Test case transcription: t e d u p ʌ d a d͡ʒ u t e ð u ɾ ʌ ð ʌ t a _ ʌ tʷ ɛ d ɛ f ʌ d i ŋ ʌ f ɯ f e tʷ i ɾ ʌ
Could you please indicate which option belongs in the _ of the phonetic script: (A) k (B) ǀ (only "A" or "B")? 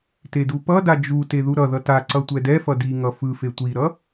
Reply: B